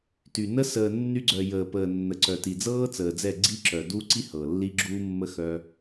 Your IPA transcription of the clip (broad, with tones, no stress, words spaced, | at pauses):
ty˨nə˦ səː˨nːy˧ɡ͡ǀœ˨ jəː˨pəː˨nːə˨ ǀœ˨ti˨d͡zɤː˦ t͡səː˨d͡zɛ˦˨ɡ͡ǀi˦ǁœ˨ du˦ǀi˦ hɤ˨lːi˦ɡ͡ǁuː˦mːə˦ xœ˧